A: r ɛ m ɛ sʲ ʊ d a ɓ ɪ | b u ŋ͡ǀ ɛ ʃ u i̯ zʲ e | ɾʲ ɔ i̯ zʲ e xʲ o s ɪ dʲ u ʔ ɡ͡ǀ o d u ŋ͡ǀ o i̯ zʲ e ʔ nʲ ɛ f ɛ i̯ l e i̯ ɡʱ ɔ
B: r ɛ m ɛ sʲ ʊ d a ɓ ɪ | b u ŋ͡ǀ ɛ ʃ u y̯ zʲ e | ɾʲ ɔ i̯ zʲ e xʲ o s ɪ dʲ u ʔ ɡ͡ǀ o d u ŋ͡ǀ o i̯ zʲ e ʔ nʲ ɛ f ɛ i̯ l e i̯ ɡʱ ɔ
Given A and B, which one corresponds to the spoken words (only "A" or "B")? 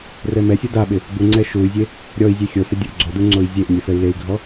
B